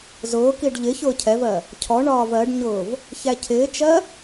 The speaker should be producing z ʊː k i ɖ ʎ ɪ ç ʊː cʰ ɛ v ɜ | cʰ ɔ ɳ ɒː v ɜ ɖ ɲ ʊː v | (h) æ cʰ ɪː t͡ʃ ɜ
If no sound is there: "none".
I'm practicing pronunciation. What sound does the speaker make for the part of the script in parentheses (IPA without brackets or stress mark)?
ç